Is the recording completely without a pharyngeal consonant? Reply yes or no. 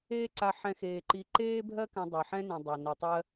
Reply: no